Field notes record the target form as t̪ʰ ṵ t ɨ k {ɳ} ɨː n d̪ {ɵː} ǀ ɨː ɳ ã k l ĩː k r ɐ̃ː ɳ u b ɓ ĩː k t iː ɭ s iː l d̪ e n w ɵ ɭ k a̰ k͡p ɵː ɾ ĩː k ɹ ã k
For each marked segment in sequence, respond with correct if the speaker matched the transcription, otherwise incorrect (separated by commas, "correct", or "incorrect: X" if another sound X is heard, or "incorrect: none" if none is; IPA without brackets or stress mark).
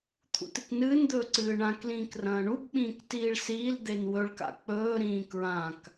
incorrect: n, correct